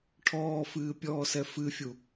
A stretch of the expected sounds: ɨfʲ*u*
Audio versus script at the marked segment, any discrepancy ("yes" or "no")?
no